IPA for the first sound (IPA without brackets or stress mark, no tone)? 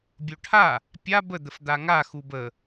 bʲ